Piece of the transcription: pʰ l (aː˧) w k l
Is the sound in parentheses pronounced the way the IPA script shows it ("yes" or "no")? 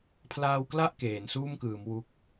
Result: yes